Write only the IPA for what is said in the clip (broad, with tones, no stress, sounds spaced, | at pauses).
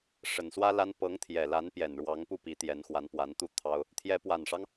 ʂ ə˨˩ n s w ä˥ l a˥ n p ɤ˧˥ ŋ t̪ʰ j ɛ˨˩ l a˧˥ n p j ɛ˨˩ n ɻ w ɑ˧˥ ŋ p u˥˩ p i˧˥ t̪ j ɛ˧˥ n x w a˧˥ n p w a˧˥ n t̪ u˥˩ t̪ʰ ɑ˥ ʊ̯ | t̪ʰ j ɛ˧˥ p w a˨˩ n ʂ ɑ˦ ŋ